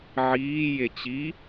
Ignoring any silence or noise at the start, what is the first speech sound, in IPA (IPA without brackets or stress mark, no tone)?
ʕ